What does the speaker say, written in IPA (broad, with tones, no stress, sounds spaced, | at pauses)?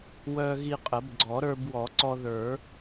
w œ˧ ɣ i˧ qʼ ə˨˩˦ b ɡ͡ǀ ɔ˨˩˦ ɾ ə˞˧ b w ɔ˨˩˦ ǀ ɔ˧ ð ə˞˨˩˦